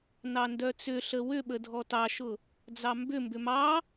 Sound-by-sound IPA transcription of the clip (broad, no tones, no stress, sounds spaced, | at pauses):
n ɑ n d œ t͡s ʏ ɬ ə w ʏ ɓ ə dʱ ɔ t ɑ ʃ ʊ | d͡z ɑ m b ʏ m b ʏ m ɑ